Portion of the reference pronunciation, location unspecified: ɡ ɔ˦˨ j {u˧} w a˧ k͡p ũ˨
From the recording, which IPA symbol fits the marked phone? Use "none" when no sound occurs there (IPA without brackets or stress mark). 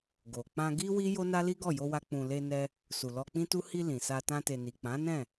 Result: o˧